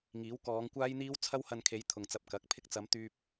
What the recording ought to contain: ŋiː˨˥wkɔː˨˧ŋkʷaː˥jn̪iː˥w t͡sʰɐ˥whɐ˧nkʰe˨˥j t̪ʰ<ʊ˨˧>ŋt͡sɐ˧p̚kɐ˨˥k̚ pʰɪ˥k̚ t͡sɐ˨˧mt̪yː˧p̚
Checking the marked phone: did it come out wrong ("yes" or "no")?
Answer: yes